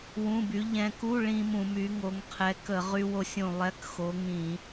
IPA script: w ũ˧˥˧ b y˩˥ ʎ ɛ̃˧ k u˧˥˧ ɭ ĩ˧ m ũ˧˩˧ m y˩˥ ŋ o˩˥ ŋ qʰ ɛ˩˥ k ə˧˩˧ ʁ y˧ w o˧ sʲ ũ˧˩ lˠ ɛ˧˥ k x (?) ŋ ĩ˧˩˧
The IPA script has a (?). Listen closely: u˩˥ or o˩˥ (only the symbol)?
o˩˥